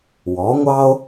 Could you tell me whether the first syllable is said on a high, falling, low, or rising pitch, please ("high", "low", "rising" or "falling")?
rising